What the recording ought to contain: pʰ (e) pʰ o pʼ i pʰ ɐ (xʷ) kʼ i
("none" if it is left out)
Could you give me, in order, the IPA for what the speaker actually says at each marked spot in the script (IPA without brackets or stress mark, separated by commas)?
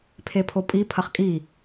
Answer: e, χ